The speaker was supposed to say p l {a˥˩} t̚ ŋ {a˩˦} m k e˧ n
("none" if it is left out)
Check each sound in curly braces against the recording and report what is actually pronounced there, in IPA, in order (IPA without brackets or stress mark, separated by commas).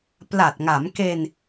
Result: a˨˩, a˩˦